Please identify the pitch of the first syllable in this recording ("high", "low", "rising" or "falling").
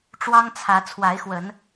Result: high